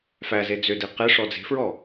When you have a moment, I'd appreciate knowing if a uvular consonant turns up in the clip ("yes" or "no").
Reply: yes